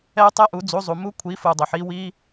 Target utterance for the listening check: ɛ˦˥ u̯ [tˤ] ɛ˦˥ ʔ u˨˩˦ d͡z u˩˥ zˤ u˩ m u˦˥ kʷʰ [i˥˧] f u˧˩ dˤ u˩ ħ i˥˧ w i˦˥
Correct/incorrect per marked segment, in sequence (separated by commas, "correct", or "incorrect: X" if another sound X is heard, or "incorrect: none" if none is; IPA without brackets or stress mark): correct, incorrect: i˩˥